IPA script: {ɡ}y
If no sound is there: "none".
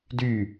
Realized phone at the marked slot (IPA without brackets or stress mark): d